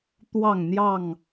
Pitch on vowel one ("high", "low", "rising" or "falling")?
falling